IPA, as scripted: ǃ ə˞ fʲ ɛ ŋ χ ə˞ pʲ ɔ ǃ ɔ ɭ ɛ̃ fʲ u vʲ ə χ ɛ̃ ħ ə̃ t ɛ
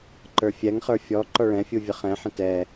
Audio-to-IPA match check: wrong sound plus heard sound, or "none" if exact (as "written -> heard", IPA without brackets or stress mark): pʲ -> fʲ